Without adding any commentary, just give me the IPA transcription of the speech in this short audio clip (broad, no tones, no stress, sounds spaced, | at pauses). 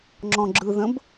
ŋ͡ǁ ɔ̃ ɡ͡ǁ ɯ ð ə̃ b